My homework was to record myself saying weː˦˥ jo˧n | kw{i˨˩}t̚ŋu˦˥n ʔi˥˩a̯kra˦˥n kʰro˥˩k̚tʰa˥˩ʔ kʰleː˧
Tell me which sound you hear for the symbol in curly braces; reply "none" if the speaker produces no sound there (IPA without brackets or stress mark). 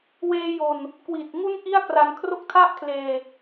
i˨˩